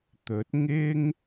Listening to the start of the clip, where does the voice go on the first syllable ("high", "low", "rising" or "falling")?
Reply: rising